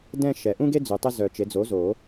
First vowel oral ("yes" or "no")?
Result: no